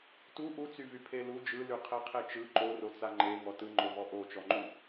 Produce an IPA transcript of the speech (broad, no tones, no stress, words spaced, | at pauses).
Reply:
tu ʔut͡syvy pʰelu d͡ʒɯly qʰeqʰet͡ʃɯ ǃorot͡sa ŋ͡ǃeŋɔ tɯŋ͡ǃovɔ ʔot͡ʃɔŋ͡ǃu